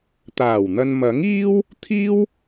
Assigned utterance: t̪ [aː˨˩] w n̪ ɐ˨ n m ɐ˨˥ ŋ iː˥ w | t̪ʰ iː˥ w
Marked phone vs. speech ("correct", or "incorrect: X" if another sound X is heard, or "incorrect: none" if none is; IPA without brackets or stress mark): correct